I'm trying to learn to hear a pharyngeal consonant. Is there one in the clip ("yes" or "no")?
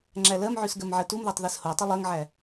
yes